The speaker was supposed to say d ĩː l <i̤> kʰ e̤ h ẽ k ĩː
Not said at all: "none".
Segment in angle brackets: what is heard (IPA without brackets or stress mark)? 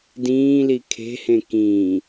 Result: i